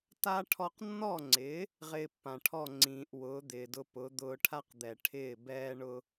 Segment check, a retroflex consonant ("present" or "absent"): present